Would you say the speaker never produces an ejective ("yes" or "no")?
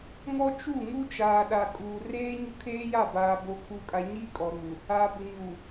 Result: no